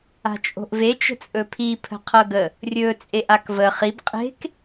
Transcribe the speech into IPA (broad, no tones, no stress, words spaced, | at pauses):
a̤t͡ʃʼo̤ʔve t͡ʃə̤t͡sʼɵpʰi pʰə̤qʰɤɡə | rʲɵ t͡sʼeʔakvə χib qʼe̤k